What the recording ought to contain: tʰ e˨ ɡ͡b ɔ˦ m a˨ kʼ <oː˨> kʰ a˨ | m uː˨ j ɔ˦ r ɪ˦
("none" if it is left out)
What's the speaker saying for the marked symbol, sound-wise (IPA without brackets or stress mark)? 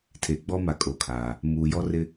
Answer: o˨